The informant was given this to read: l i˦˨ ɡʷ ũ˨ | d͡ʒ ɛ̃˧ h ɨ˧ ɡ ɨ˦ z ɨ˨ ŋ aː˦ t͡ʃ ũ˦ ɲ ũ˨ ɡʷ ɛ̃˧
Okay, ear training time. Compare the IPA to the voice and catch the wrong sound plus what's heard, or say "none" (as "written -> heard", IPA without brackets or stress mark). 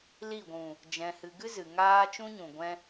none